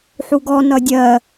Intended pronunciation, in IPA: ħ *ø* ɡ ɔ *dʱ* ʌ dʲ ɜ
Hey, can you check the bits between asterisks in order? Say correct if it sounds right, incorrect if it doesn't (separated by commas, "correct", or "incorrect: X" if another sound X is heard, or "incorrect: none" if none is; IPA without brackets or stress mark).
incorrect: u, incorrect: n